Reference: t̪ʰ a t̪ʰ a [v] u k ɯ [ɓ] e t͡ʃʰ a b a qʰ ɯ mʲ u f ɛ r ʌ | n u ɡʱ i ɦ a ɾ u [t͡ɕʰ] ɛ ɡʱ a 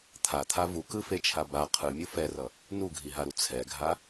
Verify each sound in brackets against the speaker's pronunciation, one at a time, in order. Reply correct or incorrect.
correct, incorrect: f, incorrect: t͡sʰ

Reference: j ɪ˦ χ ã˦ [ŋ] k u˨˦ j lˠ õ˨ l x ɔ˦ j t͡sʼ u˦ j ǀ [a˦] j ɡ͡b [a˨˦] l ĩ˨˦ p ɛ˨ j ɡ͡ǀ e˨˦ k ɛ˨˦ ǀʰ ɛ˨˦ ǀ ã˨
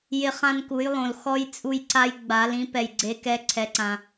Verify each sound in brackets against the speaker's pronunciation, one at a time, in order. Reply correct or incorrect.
incorrect: n, correct, correct

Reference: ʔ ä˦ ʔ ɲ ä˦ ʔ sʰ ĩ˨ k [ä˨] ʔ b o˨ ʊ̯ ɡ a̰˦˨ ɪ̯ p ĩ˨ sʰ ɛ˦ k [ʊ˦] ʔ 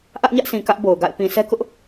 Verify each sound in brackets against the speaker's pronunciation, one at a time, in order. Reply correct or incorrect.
incorrect: ä˦, correct

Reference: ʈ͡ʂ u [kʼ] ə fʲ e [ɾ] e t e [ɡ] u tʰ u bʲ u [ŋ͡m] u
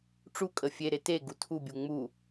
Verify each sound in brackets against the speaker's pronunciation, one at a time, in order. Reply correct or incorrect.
correct, correct, correct, correct

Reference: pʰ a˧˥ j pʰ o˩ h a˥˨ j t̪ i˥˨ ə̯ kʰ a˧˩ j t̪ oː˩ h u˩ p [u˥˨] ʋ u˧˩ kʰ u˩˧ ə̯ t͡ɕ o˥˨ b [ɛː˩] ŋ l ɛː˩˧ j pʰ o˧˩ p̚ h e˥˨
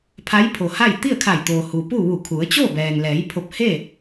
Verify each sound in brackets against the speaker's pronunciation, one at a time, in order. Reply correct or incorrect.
correct, correct

